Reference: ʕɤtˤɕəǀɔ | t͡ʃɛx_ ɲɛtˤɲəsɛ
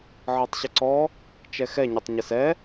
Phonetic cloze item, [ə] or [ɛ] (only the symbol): ɛ